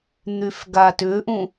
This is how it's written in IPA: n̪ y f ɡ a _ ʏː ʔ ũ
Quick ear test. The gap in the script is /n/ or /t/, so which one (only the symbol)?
t